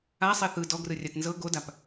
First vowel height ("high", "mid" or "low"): low